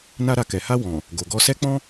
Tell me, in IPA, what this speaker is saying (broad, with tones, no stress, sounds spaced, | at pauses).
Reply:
n a˧ ɾ a˨ k ɛ˨ h a˧ w ɔ̃˨ | ɡ o˨ ɡ ɔ˧ s ɛ˦ k͡p ɔ̃˦